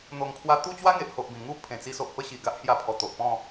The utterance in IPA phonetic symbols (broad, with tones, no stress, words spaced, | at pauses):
n̪o˨˩ŋkʰwa˧ t̪u˥˧t͡ɕwa˦ŋe˨ʔho˨ʔ bĩ˨˩ŋu˥˧ pʰẽ˨˩t͡si˧so˨ʔ pə˦ɕi˨˩ ɡa˦ʔhja˧ pʰɔ˨˩t̪o˨ʔpɔ̃˥˧